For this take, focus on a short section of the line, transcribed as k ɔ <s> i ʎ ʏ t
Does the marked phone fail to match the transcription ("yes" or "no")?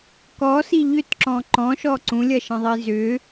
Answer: no